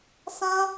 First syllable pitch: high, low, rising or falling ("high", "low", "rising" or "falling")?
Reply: high